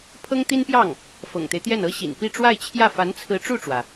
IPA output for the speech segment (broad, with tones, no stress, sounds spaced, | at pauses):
pʰ ɤ˥ ŋ t̪ i˥ n p j ɑ˥˩ ŋ | f ɤ̰˨˩ ŋ t̪ e˦ ɪ̯ t̪ j ɛ˥˩ n ɤ˥ ɕ ḭ˨˩ n p i˥˧ ʈ͡ʂ w a˥˧ ɪ̯ t͡ɕʰ j ä˥˩ f a˧˥ n t͡sʰ ɹ̩˧˥ ʈ͡ʂ u˥˩ ʈ͡ʂ w ä˩